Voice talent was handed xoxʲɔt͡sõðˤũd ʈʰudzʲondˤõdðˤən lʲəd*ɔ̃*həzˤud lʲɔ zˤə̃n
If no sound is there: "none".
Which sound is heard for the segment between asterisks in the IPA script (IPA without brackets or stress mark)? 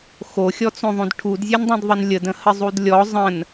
ə̃